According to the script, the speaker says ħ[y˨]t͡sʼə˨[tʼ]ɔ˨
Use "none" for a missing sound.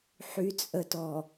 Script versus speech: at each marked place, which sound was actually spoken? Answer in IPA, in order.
y˨, t

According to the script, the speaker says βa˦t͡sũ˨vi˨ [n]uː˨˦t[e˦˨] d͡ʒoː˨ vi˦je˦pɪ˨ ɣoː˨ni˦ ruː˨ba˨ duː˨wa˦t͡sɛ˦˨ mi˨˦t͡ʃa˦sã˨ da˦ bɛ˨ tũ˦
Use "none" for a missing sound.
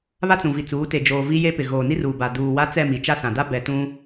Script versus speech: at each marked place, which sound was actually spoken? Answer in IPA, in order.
t͡s, e˨

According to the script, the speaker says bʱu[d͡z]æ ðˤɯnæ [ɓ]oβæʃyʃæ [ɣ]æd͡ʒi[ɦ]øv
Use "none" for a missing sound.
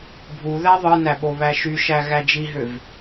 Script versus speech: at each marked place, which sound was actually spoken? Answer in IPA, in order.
ð, ɓ, ɣ, ɦ

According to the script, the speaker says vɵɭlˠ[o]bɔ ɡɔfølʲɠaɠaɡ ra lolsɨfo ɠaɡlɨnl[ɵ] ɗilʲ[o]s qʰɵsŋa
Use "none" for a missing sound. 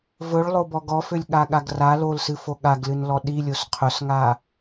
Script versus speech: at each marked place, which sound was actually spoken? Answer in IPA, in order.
o, ɔ, o

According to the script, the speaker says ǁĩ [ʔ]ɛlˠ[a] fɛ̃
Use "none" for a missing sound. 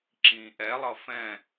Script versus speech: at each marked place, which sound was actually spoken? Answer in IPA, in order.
ʔ, ʌ

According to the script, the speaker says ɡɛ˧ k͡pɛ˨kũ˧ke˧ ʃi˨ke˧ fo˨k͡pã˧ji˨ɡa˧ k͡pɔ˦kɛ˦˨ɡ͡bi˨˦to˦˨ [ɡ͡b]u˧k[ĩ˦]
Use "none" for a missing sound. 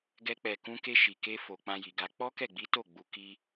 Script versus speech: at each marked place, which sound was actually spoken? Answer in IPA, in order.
ɡ͡b, i˦

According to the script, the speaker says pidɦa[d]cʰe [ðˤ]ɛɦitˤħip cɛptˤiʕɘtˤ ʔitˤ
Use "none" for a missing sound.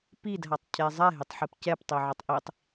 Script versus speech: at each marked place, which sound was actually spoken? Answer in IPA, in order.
tˤ, zˤ

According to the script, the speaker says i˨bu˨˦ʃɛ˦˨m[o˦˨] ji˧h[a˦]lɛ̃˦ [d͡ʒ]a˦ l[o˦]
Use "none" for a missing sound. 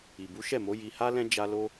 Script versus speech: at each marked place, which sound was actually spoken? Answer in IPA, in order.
o˨˦, a˦, d͡ʒ, o˦

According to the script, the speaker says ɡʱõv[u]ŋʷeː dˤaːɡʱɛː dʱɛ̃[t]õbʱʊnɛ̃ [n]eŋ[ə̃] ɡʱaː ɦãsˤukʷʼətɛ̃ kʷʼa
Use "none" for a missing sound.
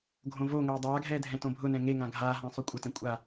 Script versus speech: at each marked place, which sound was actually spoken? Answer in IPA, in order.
o, t, ŋ, ã

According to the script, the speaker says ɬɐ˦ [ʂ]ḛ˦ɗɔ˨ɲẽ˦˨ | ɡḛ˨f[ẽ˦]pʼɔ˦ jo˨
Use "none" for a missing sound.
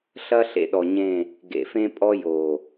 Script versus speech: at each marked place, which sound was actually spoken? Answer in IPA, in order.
ɬ, ẽ˦

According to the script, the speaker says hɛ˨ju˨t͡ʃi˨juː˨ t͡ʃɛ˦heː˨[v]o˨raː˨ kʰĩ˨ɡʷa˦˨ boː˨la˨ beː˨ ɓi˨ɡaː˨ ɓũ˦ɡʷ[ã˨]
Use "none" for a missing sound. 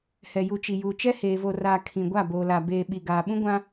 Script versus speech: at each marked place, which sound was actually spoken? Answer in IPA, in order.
v, ã˦

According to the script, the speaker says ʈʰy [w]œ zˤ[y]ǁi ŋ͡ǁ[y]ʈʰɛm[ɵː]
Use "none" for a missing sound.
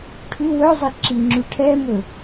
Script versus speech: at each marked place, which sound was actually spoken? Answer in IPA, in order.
w, e, y, ɵ

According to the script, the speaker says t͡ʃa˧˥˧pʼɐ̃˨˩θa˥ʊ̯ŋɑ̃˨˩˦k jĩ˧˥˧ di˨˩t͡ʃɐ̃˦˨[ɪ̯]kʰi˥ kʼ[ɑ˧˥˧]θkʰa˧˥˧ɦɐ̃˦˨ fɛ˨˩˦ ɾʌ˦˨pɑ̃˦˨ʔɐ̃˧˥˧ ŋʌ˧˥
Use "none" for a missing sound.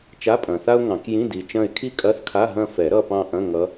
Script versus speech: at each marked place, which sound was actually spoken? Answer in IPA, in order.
ɪ̯, ɐ˧˥˧

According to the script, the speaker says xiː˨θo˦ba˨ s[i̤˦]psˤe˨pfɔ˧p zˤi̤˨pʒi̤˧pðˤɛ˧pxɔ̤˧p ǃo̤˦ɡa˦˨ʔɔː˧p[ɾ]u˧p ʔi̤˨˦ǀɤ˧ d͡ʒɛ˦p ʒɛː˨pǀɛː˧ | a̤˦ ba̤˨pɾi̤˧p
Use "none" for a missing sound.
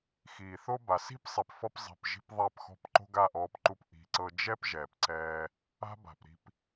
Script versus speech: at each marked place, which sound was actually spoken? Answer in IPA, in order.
i̤˦, ǃ

